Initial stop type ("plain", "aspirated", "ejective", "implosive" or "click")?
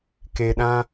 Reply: plain